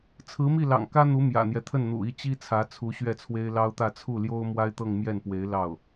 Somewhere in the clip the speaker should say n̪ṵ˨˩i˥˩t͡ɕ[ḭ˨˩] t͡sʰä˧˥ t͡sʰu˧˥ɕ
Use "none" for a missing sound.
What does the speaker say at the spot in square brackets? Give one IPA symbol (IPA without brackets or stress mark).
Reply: i˥